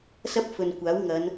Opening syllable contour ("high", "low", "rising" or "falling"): high